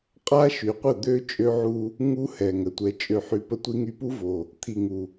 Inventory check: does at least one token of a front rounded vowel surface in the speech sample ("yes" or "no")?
yes